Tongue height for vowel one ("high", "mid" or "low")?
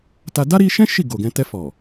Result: low